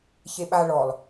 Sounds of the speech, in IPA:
ç e ɓ a ɭ ɔ lˠ

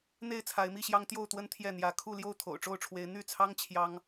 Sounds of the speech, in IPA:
n̪ e˥˨ ɪ̯ t͡sʰ a˨˦ ɪ̯ m i˥˨ ɕ j ɑ˦ ŋ t̪ j o˥˨ ʊ̯ t̪ w ə˦ n t̪ʰ j ɛ˥˨ n̪ j ä˦ kʰ u˥˨ l j o˥˨ ʊ̯ t̪ʰ o̰˨˩ ʊ̯ ʈ͡ʂ o˥˨ ʊ̯ ʈ͡ʂʰ w e˨˦ ɪ̯ n̪ y˥˨ t͡sʰ ɑ˦ ŋ t͡ɕʰ j ɑ˦ ŋ

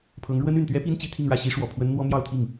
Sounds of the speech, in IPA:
pʰ ɤ˧˥ ŋ ɻ w ə˥ n y˨˩ n t̪ ɥ ɛ˥ p i˥ n t͡ɕ i˧˥ t̪ʰ i˥˧ ŋ ɻ ä˥˩ ɕ i˥ ʂ w ɔ˨˩ pʰ w ə˥ n n̪ w ɔ˥ m j ɑ˥˧ ʊ̯ t̪ʰ i˥˩ ŋ

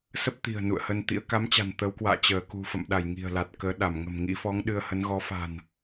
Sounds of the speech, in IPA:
s ə˦˥ p̚ t̪ i̤˨˩ ə̯ n ṵ˧˨ ə̯ h ə˧ n t̪ ḭ˧˥ ə̯ k a˨˦ m t͡ɕ a̤˨˩ n t̪ ə˨˦ w k w a̰ː˧˨ t͡ɕ əː˧˩ k ṳ˨˩ f ə̰˧˨ m ɗ a˧˩ j ŋ i̤˨˩ ə̯ l a˨˩ t̚ k əː˨˦ ɗ a˧˩ m ŋ ə̤˨˩ m ŋ ḭ˧˥ f ɔ˨˦ ŋ ɗ ɨ˧ ə̯ h ə˨˦ n ɣ ɔ˨˦ f a̤˨˩ n

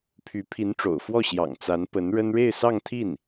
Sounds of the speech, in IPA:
pʰ y˧˥ pʰ i˧˥ n ʈ͡ʂ o̰˨˩ ʊ̯ f w ɔ˥˩ ɕ j ɑ̰˨˩ ŋ t͡s a˧˥ n p ə˧˥ n ɻ ə˥ n ɻ e˥˧ ɪ̯ s ɑ˥˧ ŋ t̪ʰ i˥˩ n

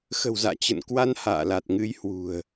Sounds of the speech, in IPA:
x ə̤˨˩ w z a̰ː˧˨ t͡ɕ ə̰˧˨ n k w a˧ n h a̰ː˧˨ l a˨˩ t̚ ŋ ɨ˧ j h w ṳ˨˩ ə̯

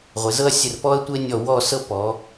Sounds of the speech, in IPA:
ʁʷ e˩˧ z ɤ˥ ɐ̯ sʲ ə˧˩ r p ɔ˥ ɐ̯ tʷ e˥ nʲ ɔ˧˩ w ɔ˥˧ s ɤ˥ p ɔ˩˧

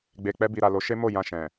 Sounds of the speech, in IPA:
ɡ͡b e˨ k͡p ɛ˧ b i˨ ɾ a˨ l o˨˦ ʃ e˦ m o˦˨ j ã˧ ʃ ɛ̃˨

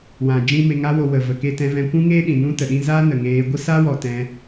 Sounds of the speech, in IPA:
w ã˨ d͡ʒ ĩ˦ m e˧ ŋ a˦ w o˧ w ə˨ v ə˨ k e˧ t ɛ̃˧ v ɛ̃˧ kʷ ũ˦ ŋ eː˦ ɗ ĩ˨ n ũ˦ t ə˨ ɗ ĩ˦ z a˦ n ə˨ ŋ eː˧ ɡʷ ə˦ s a˦ w ɔ˨ t ɛ̃˧

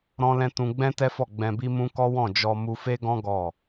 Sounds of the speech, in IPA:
ɾ ɔ̃˧ l ɛ̃˧ t ũ˧ ɡ͡b ɛ̃˦ t ɛ˦ f ɔ˦˨ ɡ͡b ɛ̃˧ b i˦ m ũ˦ k ɔ˦ w ɔ̃˦˨ d͡ʒ ɔ˧ m u˧ f e˦ ɡ ɔ̃˦ ɡ ɔ˦˨

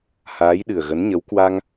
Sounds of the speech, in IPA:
h aː˨˦ j ɗ ɨ˨˩ ə̯ ɣ ə˨˦ n ɲ ə˨˦ w k w a˧ ŋ

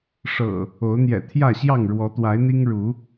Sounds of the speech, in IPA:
ʂ ɤ̰˨˩ | o˨˦ ʊ̯ n̪ j ɛ̰˨˩ t̪ʰ j ä˥˨ ɕ j ɑ˥˨ ŋ ɻ w ɔ˨˦ t̪ w a˨˦ ɪ̯ n̪ i˦ ŋ ɻ u˨˦

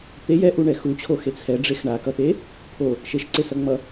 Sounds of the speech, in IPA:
t̪ e j ɛ ʔ u ɳ ɛ x u t͡ɕʰ o x e t͡sʰ ɛ ɖ͡ʐ e x ɳ a k ʌ t e | pʰ o | ʃ e ʃ ǀ e s ʌ ŋ͡m ʌ

